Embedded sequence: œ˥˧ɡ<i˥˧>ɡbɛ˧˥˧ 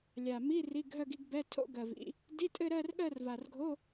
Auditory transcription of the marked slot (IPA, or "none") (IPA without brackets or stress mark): i˥˧